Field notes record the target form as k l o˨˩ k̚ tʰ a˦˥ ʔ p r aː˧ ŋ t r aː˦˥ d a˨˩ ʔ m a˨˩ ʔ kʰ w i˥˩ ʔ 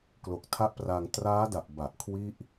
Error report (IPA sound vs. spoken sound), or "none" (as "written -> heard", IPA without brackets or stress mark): m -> b